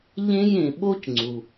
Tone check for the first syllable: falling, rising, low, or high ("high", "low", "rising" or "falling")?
high